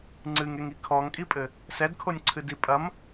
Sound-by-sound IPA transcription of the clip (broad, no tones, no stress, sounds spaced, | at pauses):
ŋ͡ǀ ɨ ŋ e ŋ i kʰ ɔ ŋ kʼ i pʼ ɘ | s ɛ d kʰ o nʲ ǀʰ ɨ d i pʼ ɐ m